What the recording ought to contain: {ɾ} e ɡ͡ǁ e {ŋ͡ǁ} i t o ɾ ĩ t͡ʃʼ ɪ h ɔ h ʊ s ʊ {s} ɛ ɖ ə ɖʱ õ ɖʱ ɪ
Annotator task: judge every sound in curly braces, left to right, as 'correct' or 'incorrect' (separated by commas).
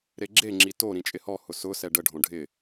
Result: correct, correct, correct